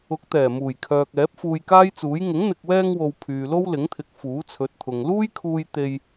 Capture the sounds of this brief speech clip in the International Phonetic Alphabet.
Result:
ʊ˨˥k̚t̪ɛː˨˩muː˨˩jkʰœː˨k̚ ɛː˨˥p̚fuː˧jkaː˥jt͡suː˨˥j ŋɪ˨˥ŋn̪ɪ˨k̚wɛː˧ŋwo˨w pʰyː˨lo˥wlɪ˨˥ŋt̪ʰɪ˨˥k̚ fuː˨˥t͡sʰɵ˨˥t̚t̪ʰʊ˨ŋ luː˥jkʰuː˧j t̪e˧j

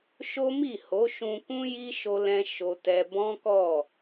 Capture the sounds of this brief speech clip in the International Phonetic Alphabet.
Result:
ʃo˦mi˦˨ho˨˦ʃũ˧ kũ˦ji˦ ʃo˦lɛ̃˦ ʃo˧tɛ˧ bɔ̃˦kɔ˦˨

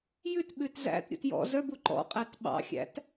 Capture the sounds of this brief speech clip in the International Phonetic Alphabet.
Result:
jʉtɓʉt zæ̰tɾʲṵt jɔ̰ zœbu ǃɔ̰ qʼætɓɑ̰xʲæ̰t

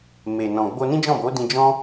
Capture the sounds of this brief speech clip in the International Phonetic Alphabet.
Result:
me˨ nɔ̃˨ ɡ͡bo˧nĩ˦d͡ʒɔ̃˦˨bo˨˦ dĩ˧d͡ʒɔ̃˦

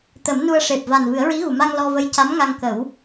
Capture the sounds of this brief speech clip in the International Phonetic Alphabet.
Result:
t̪ə˨˩˦mnu˧ə̯ ʂe˨˩p̚va˨˩n vɨ˨˩˦ə̯ɹi˧˥ɣu˨˩˨ ma˧ŋ lɔ˧və˧˥j ca˧˥mŋa˧ŋkə˨˩˦w

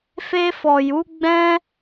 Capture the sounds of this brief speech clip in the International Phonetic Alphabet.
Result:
fe˧fɔ˨ju˨˦ɡ͡bɛ̃˦

